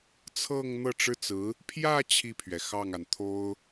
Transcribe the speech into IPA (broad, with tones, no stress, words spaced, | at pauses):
t͡sʰɤ˥˧ŋn̪ɤ˥˩ ʈ͡ʂɻ̩˥t͡sɹ̩˧˥ | pʰjä˥˧ t͡ɕʰi˥˩pʰɥɛ˩ xɑ˥˩ŋa˩n t̪ʰo˥ʊ̯